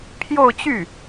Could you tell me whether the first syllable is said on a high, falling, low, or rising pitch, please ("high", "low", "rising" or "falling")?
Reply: falling